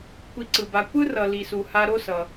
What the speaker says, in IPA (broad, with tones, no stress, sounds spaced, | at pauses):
kʷ i˨ ǀ ɯ˩ b a˨ kʷ ɯ˥ r ʌ˨ l i˨ s u˨ h a˦ ɾ o˥ s ʌ˨